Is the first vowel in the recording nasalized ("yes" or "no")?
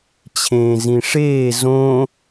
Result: yes